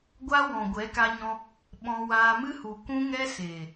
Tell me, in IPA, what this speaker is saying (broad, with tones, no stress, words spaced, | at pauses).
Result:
ɡʷa˦ wɔ̃˨ɡʷɛ˨˦ka˧ɲɔ̃˧ | ɓɔ̃˧waː˧ mɨ˦hu˨ kũ˦ŋɛ˦ seː˨